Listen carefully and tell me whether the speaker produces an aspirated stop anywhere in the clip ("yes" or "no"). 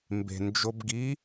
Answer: no